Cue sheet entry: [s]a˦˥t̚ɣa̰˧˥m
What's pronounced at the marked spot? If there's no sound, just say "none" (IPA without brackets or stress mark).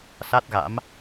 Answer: s